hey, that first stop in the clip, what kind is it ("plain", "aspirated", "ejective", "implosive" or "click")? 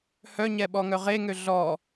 implosive